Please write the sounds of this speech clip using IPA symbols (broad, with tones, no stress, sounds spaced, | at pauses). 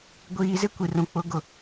ɡʷ iː˨ z ɪ˦ kʷ i˨ r ũ˨ k͡p ʊ˨˦ ɡ ʊ˨